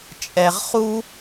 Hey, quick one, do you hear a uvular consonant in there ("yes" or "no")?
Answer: yes